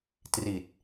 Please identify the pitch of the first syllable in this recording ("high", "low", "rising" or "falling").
low